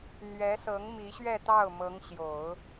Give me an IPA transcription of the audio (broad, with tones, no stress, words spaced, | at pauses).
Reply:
n̪ɥɛ˧˥sɤ˧˥ŋ mi˧˥ɕɥɛ˥˧t̪ɑ˥˩ʊ̯ mɤ˧˥ŋɕjo˨˩˦ʊ̯